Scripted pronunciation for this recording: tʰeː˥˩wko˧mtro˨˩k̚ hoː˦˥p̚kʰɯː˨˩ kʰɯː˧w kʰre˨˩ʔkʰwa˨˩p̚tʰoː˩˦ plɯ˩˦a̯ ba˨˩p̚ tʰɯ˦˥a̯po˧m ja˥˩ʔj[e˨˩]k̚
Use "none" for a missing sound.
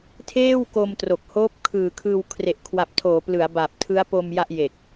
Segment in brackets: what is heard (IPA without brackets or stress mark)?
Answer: e˨˩